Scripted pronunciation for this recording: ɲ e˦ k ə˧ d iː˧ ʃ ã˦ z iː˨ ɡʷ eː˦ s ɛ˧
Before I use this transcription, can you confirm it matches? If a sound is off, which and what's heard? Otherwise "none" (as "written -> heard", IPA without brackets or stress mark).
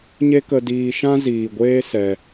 none